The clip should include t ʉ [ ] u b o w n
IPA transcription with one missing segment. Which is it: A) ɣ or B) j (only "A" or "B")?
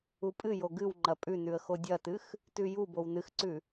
B